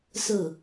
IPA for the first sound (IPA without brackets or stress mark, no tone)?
s